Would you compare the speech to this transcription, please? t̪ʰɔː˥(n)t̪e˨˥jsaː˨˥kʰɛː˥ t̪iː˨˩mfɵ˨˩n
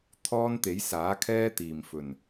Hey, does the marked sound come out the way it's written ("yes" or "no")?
yes